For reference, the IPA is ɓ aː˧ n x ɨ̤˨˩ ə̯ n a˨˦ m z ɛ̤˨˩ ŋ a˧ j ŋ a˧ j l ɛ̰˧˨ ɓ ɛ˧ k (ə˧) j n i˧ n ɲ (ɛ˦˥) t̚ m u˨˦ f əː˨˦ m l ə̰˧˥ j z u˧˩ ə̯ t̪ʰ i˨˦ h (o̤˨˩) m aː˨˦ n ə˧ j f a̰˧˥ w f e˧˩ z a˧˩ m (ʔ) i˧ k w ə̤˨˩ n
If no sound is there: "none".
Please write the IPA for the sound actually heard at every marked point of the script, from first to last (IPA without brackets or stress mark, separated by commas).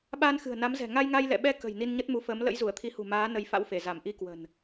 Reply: ə̤˨˩, ə˦˥, ṳ˨˩, ʔ